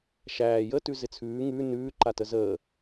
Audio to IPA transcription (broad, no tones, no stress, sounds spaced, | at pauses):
ʃ æː j ə t ʉ z ɪ t͡sʰ ʉː ŋ ʉ n ʉː ǃ a t ə z əː